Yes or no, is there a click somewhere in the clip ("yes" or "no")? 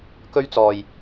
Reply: no